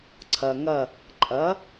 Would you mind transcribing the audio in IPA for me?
ǀʰ ɐ˩ ŋ ɐ˧˩ | ǃʼ ɐ˩˥

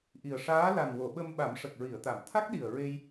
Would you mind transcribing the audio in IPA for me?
ʔ i˨˩ ə̯ ʂ aː˧˥ l a˨˩ n w o˨˩˨ ɓ ə˧ m ɓ a˨˩˦ m ʂ ə˨˩ k̚ ɹ i˨˩˨ ə̯ t̪ a˨˩˨ m t̪ʰ a˦˥ k̚ ɗ i˨˩ ə̯ ɹ e˧ j

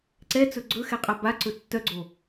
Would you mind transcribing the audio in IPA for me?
ǀ ɛ t͡s ɵ ɡ͡ǀ ɵ x ɛ qʼ a b a ǀ ɵ tː œ ɡ͡ǀ o

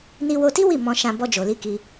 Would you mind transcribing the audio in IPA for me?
n i˧ w o˧ t i˦ w i˦˨ m ɔ̃˧ ʃ ã˧ b ɔ˧ d͡ʒ o˨ l i˧ k i˧

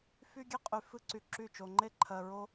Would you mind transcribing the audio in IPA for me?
f y˦ ɡʲ e˦ qʼ y˧ f ɨ˦ ǀ y˧ ǁ y˦˨ t͡ʃ o˧ ŋ͡ǃ e˦ ǃʰ ɜ˧ ɹ o˦

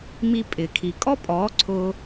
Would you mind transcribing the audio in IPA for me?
m i˧ pʼ ɪ˨ kʰ i˨ kʼ ɔ˦ pʼ ɔː˨˦ ǀʰ ʊː˧

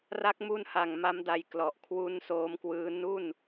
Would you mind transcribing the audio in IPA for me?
r a˦˥ k̚ m u˦˥ n h a˨˩ ŋ m a˦˥ m d a˧ j k l ɔ˨˩ ʔ kʰ w u˦˥ n s oː˦˥ m k w ɯː˦˥ n u˥˩ n

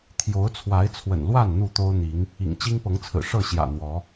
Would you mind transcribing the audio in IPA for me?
t̪ʰ j o˨˦ ʊ̯ t͡sʰ w a˨˦ ɪ̯ t͡sʰ w ə̰˨˩ n l w a˥˨ n n̪ u˥˨ t̪ o˦ ʊ̯ n̪ i˨˦ ŋ | ḭ˨˩ ŋ t͡ɕ i˦ ŋ p ɤ˨˦ ŋ t͡sʰ ɹ̩˨˩ ʂ ɤ˥˨ ɕ j ä̰˨˩ n̪ w ɔ˨˦

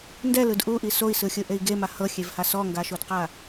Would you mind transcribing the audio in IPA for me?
n d ɛ l ɯ d ʔ u ʔ i s o i̯ s ɯ xʲ ɯ ʔ e i̯ ɡ e m a h ɤ xʲ e v h a s ɔ ŋ ɡ a ʃ o d q a

